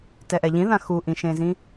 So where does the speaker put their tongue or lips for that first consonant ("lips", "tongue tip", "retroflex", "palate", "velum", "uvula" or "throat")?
tongue tip